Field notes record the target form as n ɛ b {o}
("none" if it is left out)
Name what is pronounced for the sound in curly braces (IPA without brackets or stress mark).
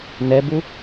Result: u